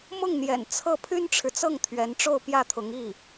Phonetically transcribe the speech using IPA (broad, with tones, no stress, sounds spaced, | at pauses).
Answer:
m ʊ˥˩ ŋ n̪ j ɛ̰˨˩ n t͡sʰ ɤ˥˩ pʰ y˥ n ʈ͡ʂʰ ɻ̩˨ t͡s ɤ˥˩ ŋ t̪ʰ ɥ ɛ˧˥ n ʈ͡ʂ o˥˧ ʊ̯ p j ä˥˩ t̪ʰ ʊ˧˥ ŋ i˥˩